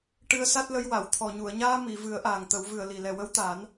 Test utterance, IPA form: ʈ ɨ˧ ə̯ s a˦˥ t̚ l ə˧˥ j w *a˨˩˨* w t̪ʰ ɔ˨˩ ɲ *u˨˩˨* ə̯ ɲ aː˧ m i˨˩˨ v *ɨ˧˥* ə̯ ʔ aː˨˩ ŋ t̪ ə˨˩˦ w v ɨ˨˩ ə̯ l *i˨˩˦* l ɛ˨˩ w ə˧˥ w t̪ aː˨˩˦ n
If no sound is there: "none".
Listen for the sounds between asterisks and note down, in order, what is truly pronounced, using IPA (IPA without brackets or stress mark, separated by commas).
a˨˩˨, u˨˩˨, ɨ˨˩˦, i˨˩